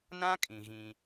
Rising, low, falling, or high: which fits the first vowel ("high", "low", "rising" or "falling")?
high